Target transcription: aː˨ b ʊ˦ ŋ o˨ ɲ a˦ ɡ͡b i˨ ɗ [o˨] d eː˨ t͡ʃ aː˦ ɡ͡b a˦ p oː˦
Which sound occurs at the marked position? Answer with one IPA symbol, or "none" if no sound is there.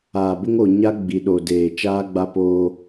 o˨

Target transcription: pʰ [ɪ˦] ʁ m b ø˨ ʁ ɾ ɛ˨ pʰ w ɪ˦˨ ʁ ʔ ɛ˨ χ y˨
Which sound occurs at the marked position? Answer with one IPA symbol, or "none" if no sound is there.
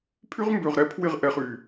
y˦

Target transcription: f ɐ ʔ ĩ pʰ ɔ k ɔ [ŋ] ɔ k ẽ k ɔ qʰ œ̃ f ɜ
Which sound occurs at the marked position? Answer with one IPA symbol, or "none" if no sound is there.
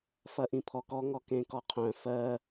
ŋ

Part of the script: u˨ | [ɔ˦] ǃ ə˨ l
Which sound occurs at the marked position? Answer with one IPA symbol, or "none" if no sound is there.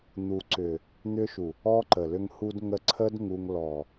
ɔ˦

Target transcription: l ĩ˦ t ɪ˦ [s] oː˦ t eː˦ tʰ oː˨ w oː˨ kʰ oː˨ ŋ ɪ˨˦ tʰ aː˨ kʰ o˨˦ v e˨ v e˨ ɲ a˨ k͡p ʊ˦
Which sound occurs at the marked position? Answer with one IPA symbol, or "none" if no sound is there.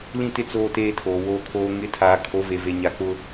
t͡s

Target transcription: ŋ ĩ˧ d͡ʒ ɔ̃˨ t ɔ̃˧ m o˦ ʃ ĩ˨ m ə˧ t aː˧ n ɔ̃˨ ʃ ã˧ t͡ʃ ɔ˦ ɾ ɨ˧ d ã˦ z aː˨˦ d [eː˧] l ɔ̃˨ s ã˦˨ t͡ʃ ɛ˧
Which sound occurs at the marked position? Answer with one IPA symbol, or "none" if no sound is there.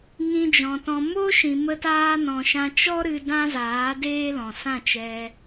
eː˦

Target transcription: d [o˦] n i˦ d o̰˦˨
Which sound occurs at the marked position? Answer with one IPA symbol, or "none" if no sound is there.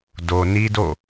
o˨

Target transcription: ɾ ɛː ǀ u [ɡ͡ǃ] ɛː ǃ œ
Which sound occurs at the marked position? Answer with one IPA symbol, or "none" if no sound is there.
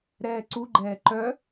ɡ͡ǃ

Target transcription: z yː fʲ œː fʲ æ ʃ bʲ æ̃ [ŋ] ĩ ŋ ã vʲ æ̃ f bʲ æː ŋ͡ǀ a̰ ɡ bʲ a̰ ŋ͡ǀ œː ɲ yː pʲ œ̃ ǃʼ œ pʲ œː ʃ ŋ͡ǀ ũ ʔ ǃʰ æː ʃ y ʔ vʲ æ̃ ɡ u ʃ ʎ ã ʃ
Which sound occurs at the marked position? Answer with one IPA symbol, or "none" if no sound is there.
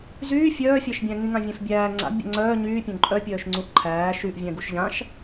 ŋ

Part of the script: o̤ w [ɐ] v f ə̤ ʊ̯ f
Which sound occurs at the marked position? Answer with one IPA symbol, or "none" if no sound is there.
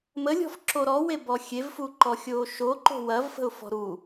ɐ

